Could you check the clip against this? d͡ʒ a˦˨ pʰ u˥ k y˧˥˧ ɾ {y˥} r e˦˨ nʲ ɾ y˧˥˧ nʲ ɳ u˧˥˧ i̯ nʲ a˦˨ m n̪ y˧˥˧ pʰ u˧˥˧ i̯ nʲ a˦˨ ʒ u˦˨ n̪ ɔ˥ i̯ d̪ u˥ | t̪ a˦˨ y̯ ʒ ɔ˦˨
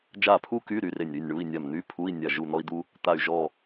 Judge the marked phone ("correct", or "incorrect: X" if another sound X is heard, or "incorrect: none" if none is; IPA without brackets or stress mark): correct